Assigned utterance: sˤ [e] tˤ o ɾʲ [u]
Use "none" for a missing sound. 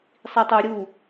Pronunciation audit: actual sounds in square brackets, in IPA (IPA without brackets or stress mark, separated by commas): i, u